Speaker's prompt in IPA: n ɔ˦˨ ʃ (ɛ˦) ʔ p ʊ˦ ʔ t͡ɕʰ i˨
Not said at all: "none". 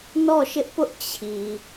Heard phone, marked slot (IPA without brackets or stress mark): ɪ˦